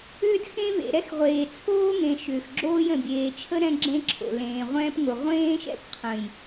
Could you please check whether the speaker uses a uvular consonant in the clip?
yes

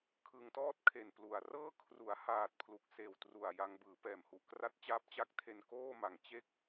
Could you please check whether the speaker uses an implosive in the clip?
no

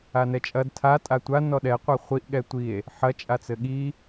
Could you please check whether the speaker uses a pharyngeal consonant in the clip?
yes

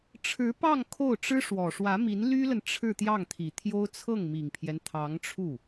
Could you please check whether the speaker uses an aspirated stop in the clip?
yes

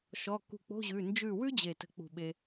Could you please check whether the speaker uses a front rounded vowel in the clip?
no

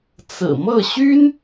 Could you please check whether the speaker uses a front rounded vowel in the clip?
yes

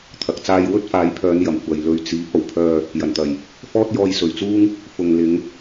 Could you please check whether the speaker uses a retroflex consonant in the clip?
no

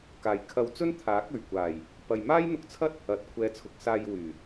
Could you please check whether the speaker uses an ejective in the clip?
no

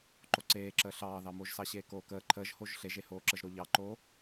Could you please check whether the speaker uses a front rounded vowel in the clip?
no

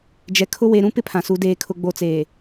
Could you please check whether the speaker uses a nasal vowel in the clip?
yes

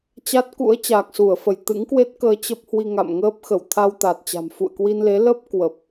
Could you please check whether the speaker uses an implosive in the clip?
no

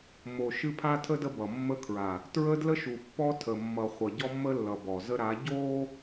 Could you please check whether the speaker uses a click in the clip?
no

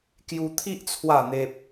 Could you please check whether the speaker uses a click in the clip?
no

